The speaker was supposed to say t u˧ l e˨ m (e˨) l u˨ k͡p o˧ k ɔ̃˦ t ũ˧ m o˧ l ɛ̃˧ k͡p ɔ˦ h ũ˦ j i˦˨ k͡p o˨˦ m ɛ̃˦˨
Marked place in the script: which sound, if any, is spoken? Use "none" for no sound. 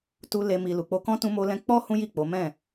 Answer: i˨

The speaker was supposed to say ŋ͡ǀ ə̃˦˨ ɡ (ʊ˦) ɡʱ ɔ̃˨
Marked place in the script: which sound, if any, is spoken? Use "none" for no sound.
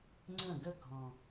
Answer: ə˦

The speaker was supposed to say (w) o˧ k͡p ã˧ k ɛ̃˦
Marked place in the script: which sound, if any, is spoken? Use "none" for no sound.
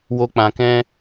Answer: w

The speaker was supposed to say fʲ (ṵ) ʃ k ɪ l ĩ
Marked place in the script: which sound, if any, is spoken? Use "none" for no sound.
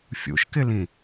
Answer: ṵ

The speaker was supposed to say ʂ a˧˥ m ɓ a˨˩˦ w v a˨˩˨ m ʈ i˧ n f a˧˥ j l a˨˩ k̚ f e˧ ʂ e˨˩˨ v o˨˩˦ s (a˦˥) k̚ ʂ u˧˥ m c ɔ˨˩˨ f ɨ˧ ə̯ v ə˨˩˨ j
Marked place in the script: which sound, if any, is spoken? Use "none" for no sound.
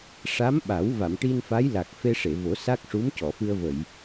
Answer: a˦˥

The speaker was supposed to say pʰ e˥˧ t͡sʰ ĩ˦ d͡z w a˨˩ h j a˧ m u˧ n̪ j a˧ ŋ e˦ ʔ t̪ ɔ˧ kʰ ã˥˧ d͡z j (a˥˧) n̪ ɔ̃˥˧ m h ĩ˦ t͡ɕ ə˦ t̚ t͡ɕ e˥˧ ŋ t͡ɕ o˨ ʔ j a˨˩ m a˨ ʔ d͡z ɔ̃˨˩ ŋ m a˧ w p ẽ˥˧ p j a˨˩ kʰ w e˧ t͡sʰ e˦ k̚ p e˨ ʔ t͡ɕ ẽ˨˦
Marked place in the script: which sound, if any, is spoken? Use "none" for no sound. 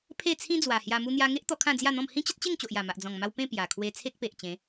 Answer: a˥˧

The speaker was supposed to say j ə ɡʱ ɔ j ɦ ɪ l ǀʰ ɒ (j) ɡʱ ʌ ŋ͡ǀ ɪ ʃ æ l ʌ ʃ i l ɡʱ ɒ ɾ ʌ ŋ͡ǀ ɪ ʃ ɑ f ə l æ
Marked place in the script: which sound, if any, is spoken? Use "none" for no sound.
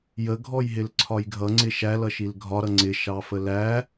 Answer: j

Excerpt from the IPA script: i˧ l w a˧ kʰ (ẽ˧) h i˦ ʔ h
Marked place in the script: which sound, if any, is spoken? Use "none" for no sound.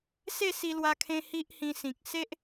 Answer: ẽ˧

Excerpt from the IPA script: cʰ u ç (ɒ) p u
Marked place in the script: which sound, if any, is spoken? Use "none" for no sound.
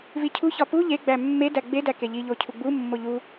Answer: ɒ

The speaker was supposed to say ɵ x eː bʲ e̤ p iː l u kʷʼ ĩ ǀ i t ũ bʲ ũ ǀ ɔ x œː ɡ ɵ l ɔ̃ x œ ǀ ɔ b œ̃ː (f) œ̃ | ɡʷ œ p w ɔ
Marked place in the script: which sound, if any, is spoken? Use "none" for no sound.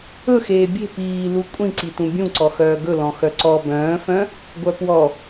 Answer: f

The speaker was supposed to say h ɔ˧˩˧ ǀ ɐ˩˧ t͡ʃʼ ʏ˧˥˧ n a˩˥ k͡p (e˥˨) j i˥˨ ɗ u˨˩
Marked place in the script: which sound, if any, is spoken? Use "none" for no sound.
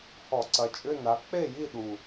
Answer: e˥˨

